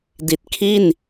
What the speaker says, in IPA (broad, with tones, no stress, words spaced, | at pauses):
di˨˩t̚ kʰi˥˩n